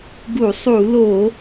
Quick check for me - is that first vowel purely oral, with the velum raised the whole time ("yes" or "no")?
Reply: yes